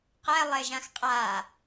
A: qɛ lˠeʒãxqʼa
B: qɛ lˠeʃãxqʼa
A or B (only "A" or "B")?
A